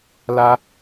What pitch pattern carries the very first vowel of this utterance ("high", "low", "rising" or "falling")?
high